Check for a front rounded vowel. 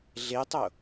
absent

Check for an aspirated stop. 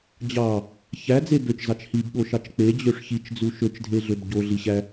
absent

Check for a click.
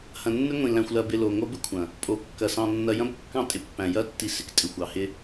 absent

